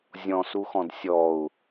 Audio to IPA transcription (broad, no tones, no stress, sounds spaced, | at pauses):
zʲ ɔ̃ s u x ɔ̃ d sʲ ɔ u̯